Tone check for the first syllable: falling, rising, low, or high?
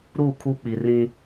falling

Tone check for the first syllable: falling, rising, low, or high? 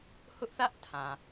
high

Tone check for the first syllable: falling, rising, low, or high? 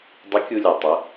rising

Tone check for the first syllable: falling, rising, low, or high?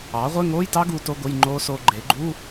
rising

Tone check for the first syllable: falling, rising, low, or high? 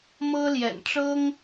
high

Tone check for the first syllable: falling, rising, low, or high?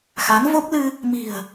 rising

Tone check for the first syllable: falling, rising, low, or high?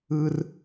high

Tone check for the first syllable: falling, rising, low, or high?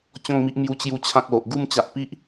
falling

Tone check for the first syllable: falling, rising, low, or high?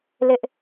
high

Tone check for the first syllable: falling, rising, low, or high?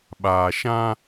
low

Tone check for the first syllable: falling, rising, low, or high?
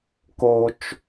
high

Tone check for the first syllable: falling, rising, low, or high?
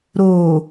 low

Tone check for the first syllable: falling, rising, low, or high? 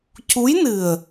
rising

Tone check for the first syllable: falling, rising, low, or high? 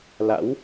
rising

